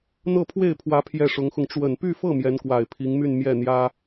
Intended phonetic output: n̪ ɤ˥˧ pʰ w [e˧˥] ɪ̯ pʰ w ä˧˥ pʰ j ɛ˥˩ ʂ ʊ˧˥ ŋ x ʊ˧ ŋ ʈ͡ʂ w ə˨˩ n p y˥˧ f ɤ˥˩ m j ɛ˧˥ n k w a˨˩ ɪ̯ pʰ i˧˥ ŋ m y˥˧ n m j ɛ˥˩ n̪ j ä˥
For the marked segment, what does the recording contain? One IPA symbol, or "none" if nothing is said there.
e˥˩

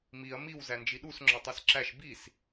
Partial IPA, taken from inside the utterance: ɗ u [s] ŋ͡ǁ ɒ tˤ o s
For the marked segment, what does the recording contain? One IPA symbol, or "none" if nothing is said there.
s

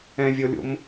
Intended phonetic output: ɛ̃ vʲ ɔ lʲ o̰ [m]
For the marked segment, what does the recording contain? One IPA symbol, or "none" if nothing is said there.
m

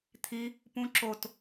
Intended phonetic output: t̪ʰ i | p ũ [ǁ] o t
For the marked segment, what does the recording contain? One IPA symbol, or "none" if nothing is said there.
ǁ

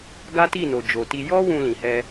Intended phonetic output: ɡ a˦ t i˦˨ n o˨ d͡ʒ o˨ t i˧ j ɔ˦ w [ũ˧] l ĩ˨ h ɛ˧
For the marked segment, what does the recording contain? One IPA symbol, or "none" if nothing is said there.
ũ˧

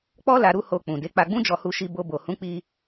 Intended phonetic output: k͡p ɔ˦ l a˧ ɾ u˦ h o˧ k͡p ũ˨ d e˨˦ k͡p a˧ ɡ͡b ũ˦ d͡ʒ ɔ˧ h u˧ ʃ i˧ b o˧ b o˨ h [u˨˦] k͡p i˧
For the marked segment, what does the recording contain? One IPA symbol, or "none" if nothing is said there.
ũ˨˦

